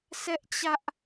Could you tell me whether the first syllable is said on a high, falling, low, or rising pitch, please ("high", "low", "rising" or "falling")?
high